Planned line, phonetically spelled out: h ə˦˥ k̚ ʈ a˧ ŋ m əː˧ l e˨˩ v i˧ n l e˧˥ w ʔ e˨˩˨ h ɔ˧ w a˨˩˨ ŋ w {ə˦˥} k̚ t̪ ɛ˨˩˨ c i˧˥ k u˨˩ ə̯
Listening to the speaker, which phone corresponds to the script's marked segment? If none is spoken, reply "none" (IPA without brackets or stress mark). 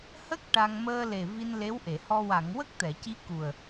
ə˦˥